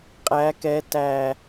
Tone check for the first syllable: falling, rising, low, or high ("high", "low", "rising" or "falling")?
rising